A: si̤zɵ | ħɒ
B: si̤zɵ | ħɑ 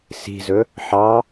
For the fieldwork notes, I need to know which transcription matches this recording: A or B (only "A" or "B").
B